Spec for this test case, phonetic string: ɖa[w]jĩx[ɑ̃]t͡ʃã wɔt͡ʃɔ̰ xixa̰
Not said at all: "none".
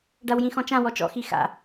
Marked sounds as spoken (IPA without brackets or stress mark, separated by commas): w, ɔ̃